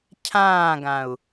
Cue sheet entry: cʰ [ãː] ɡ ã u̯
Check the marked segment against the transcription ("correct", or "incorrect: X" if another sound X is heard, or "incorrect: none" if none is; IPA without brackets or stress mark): correct